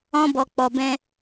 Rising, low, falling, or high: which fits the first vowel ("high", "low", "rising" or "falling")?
high